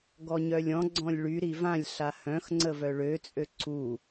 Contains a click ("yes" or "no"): yes